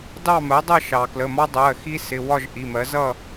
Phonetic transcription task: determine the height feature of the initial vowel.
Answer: low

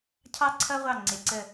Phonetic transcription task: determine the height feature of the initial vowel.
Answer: low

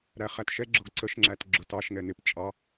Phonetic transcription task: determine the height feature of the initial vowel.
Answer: low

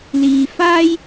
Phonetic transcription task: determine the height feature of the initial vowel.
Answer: high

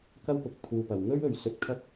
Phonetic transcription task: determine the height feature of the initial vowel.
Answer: low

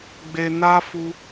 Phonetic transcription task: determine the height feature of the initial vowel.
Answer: mid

